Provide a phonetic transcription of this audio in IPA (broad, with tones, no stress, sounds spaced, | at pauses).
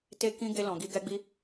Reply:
t e˦ k ĩ˦ ɡ e˧ l ɔ̃˨ ɡ i˧ ɡ ɛ˦ ɡ͡b i˦